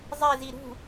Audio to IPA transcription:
zˤ e z i ɾ ṳ

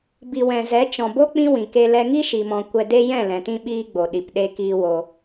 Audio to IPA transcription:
b i˨ w ɛ̃˨ z ɛ˨˦ t͡ʃ ɔ̃˨ b o˦ k͡p ĩ˦ w ĩ˨ k e˧ l ɛ˧ ŋ i˦ ʃ i˨ m ɔ̃˨ kʷ ɛ˧ d e˦ j ɛ̃˦˨ l ɛ̃˨ t ĩ˧ ɓ iː˧ ɡ͡b o˨ ɗ i˨ p ɗ e˧ k iː˧ w o˧

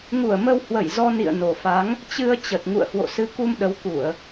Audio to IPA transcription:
ŋ u˧˩ ə̯ m ə˧ w h w ə˧˩ j z ɔ˧ n ḭ˧˨ ə̯ n o˨˩ f a˨˦ ŋ | t͡ɕ ɨ˧ ə̯ t͡ɕ ə˨˩ t̚ ŋ ṵ˧˨ ə̯ h w o̰˧˨ s ɨ˨˦ k u˧ m ɗ ə˨˦ w k u˧˩˨ ə̯

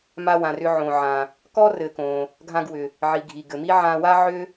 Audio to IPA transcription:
m a˧ w ã˩ r ʏ˧ ʕ õ˩ ʕ ã˩ | k ɔ˥ r ɘ˩ k õ˩ | ɡʱ ã˧ ɡ w ʏ˩ | ʕ i˩ ɡʱ i˩ ɡ ɘ˩ m i˥ ʕ ã˧ w a˥ ʕ ʏ˥

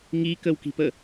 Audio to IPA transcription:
ŋ i k ə w k i̤ p ə

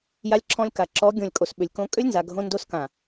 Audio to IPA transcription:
j a˧ lʲ ǁʰ ɔ̃˧ lʲ k a˨ ǁ ɔ˨˦ ɡʲ õ˨ lʲ kʼ o˨ s ɓ ʏ˨ lʲ k õ˧ kʼ ʏ˦ lʲ n z a˨ ɡʱ õ˧ n d o˧ s k ã˨

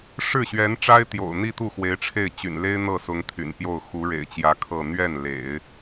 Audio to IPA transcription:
ʂ ɻ̩˥˩ ɕ ɥ ɛ˧˥ n ʈ͡ʂ a˥ ɪ̯ t̪ j o̰˨˩ ʊ̯ n̪ i˥˧ t̪ u˥˩ x w e˧˥ ɪ̯ ʈ͡ʂʰ e˥˩ ɪ̯ t͡ɕ y̰˨˩ n l e˥ ɪ̯ n̪ ɤ˥˩ s ʊ˧˥ ŋ t̪ʰ y̰˨˩ n p j o˥˩ ʊ̯ x u˧˥ ɻ ḛ˨˩ ɪ̯ t͡ɕ j ä˧˥ kʰ ɤ˥˧ n̪ ɥ ɛ˥˩ n l ḛ˨˩˦ ɪ̯

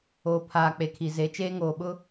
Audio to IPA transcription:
oː˨ pʰ aː˨ k͡p e˨ kʰ i˨ z e˨˦ t͡ʃ eː˦ ŋ oː˨ ɓ ʊ˦

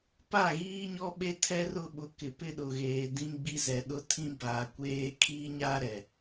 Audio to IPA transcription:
p a˦˨ ɣ iː˦ ɲ ɔ˦ ɓ e˦ tʰ ɛ˦ r ʊ˦ ɓ ʊ˨ k ɪ˨ p ɪ˦ ɗ ʊ˨ ɣ eː˨ d ĩ˦ ɡ͡b i˦ z ɛ˨ ɗ ʊ˦ tʰ ĩ˦ b aː˨ kʷ eː˦ kʰ iː˦ ɲ aː˦ ɾ ɛ˨

